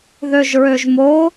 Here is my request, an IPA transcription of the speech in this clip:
ð ø ʒ ɹ ø ʒ m o

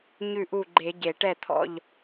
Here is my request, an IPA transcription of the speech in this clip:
ɲ ʉ˥˨ ʔ u˥˨ ɡ͡ǃ e˧˩˧ ɟ e˧˩˧ ʈ ɛ˥˨ t̪ʰ ɔ̰˥˨ ʎ

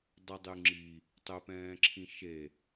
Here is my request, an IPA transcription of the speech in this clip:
dˤ ə dˤ y ŋ͡ǁ i | tˤ ø p ɛ̃ː ǁʰ ĩ ʃ e

